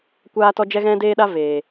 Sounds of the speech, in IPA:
kʷaː˦tɔ˦ d͡ʒɛ˦ɣɛ̃˦deː˦ɗa˦ veː˨

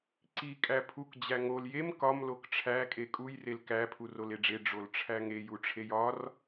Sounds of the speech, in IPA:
ǀi kʼæpʰuk d͡ʑæŋol jem kɒm lokʈ͡ʂʰæ kʼekʼuj relkæ pʰuroleɖ͡ʐe ɖ͡ʐolʈ͡ʂʰæŋe juʈ͡ʂʰejɒr

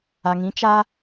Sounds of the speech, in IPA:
a˨ŋĩ˨˦ t͡ʃa˦

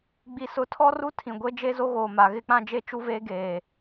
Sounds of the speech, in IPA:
ɡ͡bi˨sʊ˨˦tʰɔ˦ru˦ tʰĩ˨ ɡʷe˦ d͡ʒe˦zo˦ɣoː˨ma˨ ɣɪ˦k͡pã˦ d͡ʒe˦t͡ʃu˦veː˦ ɡeː˨

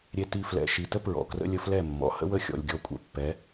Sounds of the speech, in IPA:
ɾʲe˧ ti˧ flɛ̰˨ ʃi˨tə˦ pɹɔ̰˨krə̰˦ lʲə˧flɛ˦˨mːɔ̰˨ hə̰˦wə˦˨xʲɔ̰˨lʲ ɡʲɔ˦˨kʷʼɛ̰˧pːɛ˨˦

